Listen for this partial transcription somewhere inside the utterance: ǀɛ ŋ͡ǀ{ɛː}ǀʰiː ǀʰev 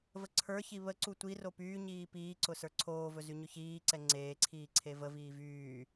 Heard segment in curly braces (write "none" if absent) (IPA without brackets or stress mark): eː